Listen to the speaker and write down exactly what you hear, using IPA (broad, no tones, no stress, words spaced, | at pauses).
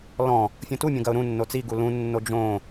lɔ̃ | fʲõtumʲõ ɡɐʊ̯ɾũnːo t͡siɡu lũnːo d͡ʒõ